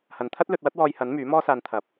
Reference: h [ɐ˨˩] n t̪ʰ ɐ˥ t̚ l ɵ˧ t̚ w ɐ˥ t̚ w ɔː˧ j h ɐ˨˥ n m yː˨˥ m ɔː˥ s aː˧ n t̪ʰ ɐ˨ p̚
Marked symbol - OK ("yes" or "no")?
no